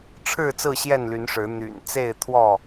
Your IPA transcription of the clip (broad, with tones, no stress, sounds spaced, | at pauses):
ʈ͡ʂʰ ɻ̩˥˨ t͡s ɹ̩˥˨ ɕ j ɛ˥˨ n l y˨˦ n ʂ ɻ̩˨˦ n̪ y̰˨˩ n t͡s e˥˨ ɪ̯ t̪ʰ w ɔ˥˨